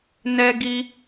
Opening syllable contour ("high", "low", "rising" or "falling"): high